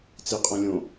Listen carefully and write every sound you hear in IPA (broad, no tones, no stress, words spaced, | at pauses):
t͡siqʼõlʲõ